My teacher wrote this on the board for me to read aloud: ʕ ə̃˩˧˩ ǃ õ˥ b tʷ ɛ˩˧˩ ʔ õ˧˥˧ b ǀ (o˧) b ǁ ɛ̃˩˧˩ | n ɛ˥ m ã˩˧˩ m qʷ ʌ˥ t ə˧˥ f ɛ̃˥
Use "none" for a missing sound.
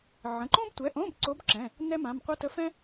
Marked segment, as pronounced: o˧˥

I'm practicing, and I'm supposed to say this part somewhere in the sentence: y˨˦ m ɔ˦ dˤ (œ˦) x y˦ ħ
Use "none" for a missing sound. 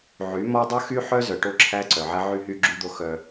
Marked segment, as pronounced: œ˦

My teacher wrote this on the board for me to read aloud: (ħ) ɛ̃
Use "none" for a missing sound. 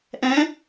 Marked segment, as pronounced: ʔ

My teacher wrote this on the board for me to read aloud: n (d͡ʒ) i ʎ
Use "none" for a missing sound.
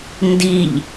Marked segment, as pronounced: d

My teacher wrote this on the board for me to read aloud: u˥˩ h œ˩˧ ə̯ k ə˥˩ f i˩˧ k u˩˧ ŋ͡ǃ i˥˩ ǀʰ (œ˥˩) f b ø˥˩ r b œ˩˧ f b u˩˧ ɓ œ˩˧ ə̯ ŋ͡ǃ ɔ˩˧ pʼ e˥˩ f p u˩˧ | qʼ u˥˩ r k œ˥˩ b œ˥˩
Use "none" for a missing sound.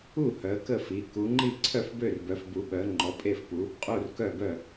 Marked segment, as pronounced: œ˥˩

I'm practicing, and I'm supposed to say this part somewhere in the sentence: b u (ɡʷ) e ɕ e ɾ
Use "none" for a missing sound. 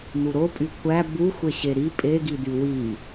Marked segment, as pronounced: xʷ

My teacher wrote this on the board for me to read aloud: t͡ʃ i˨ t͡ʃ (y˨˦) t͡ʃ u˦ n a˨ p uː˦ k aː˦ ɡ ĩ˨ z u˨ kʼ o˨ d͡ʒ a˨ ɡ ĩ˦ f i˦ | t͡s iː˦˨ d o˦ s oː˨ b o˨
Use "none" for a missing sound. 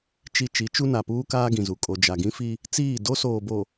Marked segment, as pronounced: i˨˦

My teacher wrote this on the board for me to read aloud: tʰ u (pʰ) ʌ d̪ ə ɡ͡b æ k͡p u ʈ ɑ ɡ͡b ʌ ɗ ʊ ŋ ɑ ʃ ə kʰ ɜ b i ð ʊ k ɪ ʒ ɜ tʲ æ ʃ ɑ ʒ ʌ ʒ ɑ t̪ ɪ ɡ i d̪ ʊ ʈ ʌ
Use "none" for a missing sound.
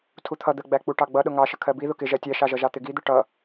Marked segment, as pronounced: t̪ʰ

